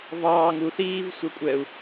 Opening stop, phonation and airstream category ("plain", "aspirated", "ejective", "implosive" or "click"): ejective